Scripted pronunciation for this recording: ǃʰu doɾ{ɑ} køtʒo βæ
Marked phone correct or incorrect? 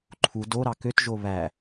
correct